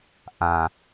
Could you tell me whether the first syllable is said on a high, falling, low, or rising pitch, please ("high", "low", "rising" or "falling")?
low